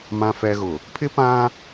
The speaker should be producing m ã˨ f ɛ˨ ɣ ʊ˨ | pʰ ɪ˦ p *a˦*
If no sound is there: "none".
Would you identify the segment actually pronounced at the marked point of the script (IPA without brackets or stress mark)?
ã˦